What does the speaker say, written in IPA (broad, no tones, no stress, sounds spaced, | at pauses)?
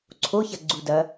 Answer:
ǀʰ o ç ɐ ɡ͡ǀ u d ɐ